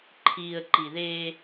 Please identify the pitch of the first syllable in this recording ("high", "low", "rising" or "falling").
low